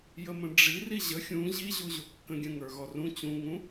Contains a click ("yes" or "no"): no